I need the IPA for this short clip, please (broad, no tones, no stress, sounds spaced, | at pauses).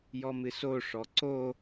j ɔ m ɨ s o ʂ ɔ ǀ o